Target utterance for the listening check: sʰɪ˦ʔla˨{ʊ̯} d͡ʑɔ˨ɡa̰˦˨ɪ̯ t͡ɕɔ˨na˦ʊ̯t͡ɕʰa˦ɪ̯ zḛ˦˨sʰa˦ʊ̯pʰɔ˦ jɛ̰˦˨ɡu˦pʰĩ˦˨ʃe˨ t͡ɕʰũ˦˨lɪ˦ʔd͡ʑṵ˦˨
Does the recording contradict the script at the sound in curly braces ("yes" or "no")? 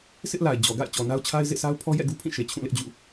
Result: yes